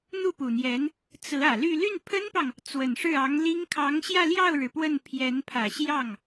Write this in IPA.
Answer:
n̪ u˥˩ p u˨˩ n̪ j ɛ˧˥ n | t͡s ɹ̩˧˥ ä˨˩ l y˥˧ l y˥˩ n pʰ ə˥ n p ɑ˨ ŋ | t͡s w ə˨˩ n ʂ ɻ̩˥˩ ɑ˧˥ ŋ l i˥ ŋ kʰ ɑ˧˥ ŋ ɕ j ä˥˧ l j ɑ˥˩ ʊ̯ ɻ ɻ̩˩ p w ə˥˩ n pʰ j ɛ˧˥ n pʰ ä˨˩ ɕ j ɑ˥˩ ŋ

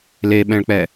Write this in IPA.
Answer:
l e ɓ ɛ̃ ɭ k͡p ɛ

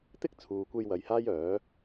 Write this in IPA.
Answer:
t̪ ɪ˥ k̚ t͡sʰ uː˨ kʷ e˧ j w ɐ˨ j h aː˥ j œː˨˥

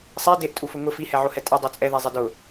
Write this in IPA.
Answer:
sˤ ɛ d e ʔ tʼ u f ʊ ŋ ʊ f i h ɛ ʕ o h ɛ tʼ ɛ dˤ o t͡sʼ ɛ ð ɛ zˤ ɛ d ʊ

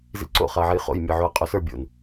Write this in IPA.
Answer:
z ḭ ǀ o̰ χ a ɐ̯ ʕ e j χ o̰ j mʲ ə˞ ʕ o ɐ̯ qʼ o s ə˞ bʲ o̰ n

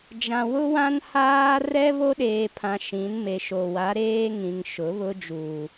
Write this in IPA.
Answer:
d͡ʒ ã˨ w ʊ˦ w ã˦ n h aː˦ r ɛ˦ β o˦ ɗ eː˨ pʰ ã˨ ʃ ĩ˨˦ n m e˨ ʃ o˨ w a˨˦ ɾ eː˦ ŋ ĩ˨ ŋ ʃ ʊ˨˦ β ʊ˦ d͡ʒ uː˨

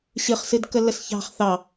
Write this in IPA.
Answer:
ɕ ɨ χ s ɨ d k ə lː ə s ç ɑ̤ χ θ ɑ

